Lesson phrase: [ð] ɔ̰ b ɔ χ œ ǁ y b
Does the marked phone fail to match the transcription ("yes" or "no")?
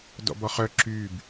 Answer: yes